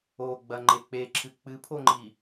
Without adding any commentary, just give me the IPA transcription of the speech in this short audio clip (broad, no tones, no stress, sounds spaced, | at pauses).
o ɡ͡b ɐ ŋ͡ǃ e k͡p e ǁʰ ɨ k͡p ɨ pʰ o ŋ͡ǃ i